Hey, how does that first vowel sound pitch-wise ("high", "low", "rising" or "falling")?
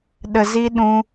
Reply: low